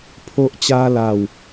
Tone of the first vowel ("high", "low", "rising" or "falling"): high